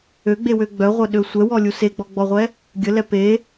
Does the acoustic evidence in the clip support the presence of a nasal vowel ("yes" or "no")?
no